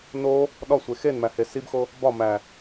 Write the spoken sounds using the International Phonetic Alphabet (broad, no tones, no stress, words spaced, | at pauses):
no | ɗɒsʷe xenmæhe sibxo | bɒmæ